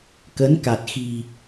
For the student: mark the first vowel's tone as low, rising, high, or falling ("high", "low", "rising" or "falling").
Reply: rising